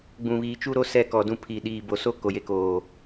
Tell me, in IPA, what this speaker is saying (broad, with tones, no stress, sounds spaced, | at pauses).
ɡ͡b ũ˨ β iː˨ t͡ʃ u˦ ɾ o˦ s ɛ˦ k ɔ˨ d ũ˦ pʰ i˨ ɗ iː˨ b o˨ s o˦ k o˨ j e˦ k oː˨